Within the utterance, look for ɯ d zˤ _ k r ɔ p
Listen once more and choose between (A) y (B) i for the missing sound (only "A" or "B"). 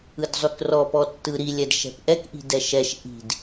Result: A